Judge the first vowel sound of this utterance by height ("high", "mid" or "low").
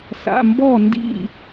low